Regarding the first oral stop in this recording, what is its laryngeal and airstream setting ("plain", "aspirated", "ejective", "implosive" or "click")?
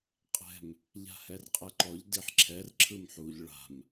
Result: ejective